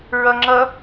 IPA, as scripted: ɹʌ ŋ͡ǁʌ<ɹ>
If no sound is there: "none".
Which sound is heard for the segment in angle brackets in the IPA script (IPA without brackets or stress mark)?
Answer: none